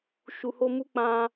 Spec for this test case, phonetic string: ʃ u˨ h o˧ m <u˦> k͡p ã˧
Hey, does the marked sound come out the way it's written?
yes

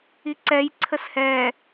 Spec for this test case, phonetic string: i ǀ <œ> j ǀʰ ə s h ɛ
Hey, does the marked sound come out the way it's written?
no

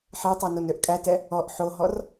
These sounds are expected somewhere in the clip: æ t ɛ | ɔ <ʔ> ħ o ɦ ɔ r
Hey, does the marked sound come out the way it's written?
yes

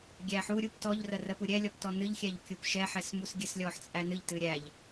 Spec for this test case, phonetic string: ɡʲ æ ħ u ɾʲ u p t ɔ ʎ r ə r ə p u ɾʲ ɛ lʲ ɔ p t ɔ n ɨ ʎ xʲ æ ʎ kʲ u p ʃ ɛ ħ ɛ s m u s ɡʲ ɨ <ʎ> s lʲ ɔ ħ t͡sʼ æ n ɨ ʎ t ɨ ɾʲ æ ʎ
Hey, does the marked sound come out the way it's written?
no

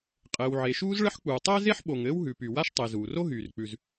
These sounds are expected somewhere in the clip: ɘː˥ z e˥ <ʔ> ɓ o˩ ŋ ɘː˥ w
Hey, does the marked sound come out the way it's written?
no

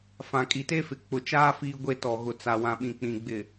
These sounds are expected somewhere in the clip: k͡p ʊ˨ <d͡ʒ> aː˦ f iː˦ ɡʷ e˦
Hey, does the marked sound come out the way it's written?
no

